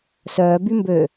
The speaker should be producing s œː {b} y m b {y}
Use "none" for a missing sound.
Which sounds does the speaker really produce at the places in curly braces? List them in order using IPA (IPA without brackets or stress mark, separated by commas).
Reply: b, ø